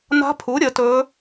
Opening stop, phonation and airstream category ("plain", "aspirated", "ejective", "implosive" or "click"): aspirated